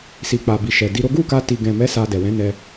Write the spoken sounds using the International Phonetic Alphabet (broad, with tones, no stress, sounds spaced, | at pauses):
s i˨ k͡p a˨ b i˨ ʃ ɛ˨ d i˧ ɾ o˦ ɡ u˦˨ k a˧ t i˨ ɡ ɛ̃˨ m ɛ˨˦ s a˧ d ɛ˨ w ɛ̃˨˦ n ɛ˧